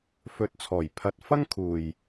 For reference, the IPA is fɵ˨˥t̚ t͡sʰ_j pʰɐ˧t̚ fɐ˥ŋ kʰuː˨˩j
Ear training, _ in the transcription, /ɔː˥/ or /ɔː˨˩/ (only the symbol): ɔː˨˩